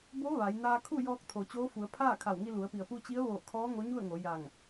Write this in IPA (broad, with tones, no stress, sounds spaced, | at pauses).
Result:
b o˧˥ ʋ a˩˧ j n aː˧ kʰ u˥˨ j ɔː˧ k̚ t̪ʰ o˩ t͡ɕ oː˧˥ f u˩˧ ə̯ pʰ aː˥˨ kʰ a˧˩ w ŋ i˧ l u˩˧ ə̯ p i˩ ə̯ p u˧ t͡ɕ i˧˥ ə̯ ʋ oː˧˩ kʰ ɔː˧˥ ŋ o˧˥ ɲ u˥˨ ə̯ ŋ o˩˧ j a˧˩ ŋ